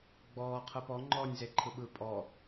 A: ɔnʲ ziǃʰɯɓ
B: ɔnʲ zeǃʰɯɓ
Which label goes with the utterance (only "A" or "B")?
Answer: B